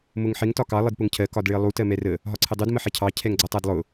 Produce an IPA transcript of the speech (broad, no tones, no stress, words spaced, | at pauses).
mʊŋħɪŋ tɒkɑ lˠɪdpʊŋcʰɜ kɒdɭɪə̯lˠu tɜmɛrə | ɦɒǀʰɪdˤud məħɛcʰɑ cʰɛŋɡ͡ǀʌtˤædlˠʊ